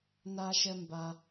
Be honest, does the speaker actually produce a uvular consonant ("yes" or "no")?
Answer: no